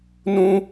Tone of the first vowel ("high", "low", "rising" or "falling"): high